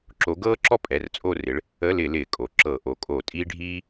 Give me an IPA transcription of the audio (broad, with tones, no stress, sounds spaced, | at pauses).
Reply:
ǁ o˨˦ ɡ ɤː˥ ǁ ɔ˥ pʼ ɛ˩˧˩ r t͡sʼ o˦˨ r ɪ˨˦ ɭ | ə˧˥˧ l ɪ˧˩˧ l ɪː˧˩˧ kʼ o˩˧˩ ǁ ɤ˧˩˧ ʔ o˩˧˩ kʼ o˧˩˧ tʼ iː˥ ɖʱ iː˥